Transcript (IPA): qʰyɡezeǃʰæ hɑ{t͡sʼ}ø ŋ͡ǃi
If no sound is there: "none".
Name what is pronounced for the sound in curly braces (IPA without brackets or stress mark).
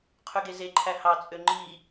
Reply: t͡sʼ